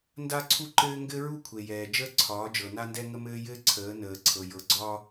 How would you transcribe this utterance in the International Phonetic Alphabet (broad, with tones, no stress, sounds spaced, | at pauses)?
n d a˦ ǀʰ u˦ ǃ ɘː˦ ŋ ɡ ɘ˦ ɹ u˦ kʷʰ e˨ j ɛː˨ d͡ʒ əː˦ ǀʰ ɒː˨˦ d͡ʒ ɤ˨ n a˦ n d ɛ˦ ŋ ə˦ m ɘː˦ j ɘː˦ ǀʰ əː˨˦ n əː˨ ǀʰ ɤ˨ j ɤ˨ ɡ͡ǀ ɒː˦